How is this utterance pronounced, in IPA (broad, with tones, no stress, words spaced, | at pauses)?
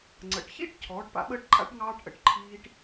ŋ͡ǀə̰˩˧ʈ çḭ˥˧ʈ cʰɔː˩˧ʈpa̰˩˧ɓəː˧ʈǃʼa̰˧ʈ ŋɑː˧ʈʔə̰˩˧ʈ ǃʰiː˧ʈ